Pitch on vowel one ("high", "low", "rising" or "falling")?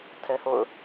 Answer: high